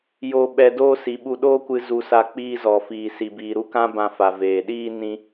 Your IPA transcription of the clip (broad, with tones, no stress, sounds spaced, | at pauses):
j o˦ ɓ ɛ˧ d oː˦ s i˨˦ ɓ u˧ ɗ oː˦ kʷ ɨ˧ z u˧ s a˧ k͡p iː˧ z ɔ˨ f iː˨ s i˨ b iː˨ ɾ u˦ k ã˦ b ã˧ f a˨ v eː˨ ɗ iː˦ n ĩ˦